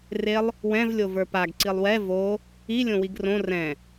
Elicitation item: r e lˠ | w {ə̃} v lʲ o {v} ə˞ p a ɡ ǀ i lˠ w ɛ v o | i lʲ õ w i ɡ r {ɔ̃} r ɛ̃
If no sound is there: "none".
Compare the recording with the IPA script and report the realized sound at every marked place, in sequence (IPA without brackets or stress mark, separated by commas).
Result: ɛ̃, v, õ